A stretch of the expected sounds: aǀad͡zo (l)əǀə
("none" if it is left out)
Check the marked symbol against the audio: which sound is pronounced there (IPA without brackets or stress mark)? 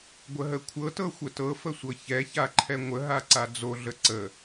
ɮ